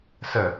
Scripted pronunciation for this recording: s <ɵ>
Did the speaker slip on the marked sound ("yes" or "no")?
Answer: yes